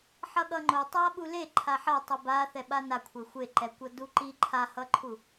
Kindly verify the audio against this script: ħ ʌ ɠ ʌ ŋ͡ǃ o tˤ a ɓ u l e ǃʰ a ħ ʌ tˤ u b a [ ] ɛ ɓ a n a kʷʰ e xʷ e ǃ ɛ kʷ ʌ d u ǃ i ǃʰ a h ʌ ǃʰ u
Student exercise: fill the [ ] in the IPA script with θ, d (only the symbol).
θ